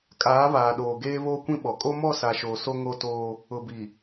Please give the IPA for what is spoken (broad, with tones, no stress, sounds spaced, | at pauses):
kʼ aː˨˦ β aː˨ ɗ oː˨ ɡ eː˦ β oː˦ kʷ ĩ˦ ɓ ɔ˨ kʼ o˦ m ɔ˦˨ s a˨ ʃ oː˨ s o˦ ŋ o˦ t oː˦ | ʊ˨ b i˨